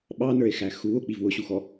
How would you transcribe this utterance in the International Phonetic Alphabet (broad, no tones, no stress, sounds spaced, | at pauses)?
ɓ ɑ n ə˞ e̯ x æ x uː o̯ k͡p i v w ʊ ɕ u x ɔ